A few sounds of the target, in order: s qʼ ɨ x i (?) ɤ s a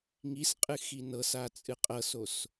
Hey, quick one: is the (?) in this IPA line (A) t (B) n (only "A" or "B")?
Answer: B